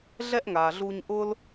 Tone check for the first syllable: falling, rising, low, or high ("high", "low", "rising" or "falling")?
high